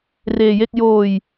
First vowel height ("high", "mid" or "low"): mid